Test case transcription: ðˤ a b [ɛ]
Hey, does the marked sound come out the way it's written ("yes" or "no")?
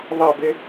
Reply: no